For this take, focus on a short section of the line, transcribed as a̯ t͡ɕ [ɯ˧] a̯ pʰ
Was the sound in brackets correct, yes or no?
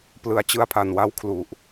yes